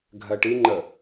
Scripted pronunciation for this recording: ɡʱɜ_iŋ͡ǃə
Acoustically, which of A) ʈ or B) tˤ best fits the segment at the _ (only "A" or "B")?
A